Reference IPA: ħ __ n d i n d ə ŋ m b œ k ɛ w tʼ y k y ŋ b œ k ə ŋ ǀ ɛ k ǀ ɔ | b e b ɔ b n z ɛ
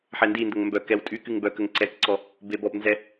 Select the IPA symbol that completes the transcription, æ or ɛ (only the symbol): ɛ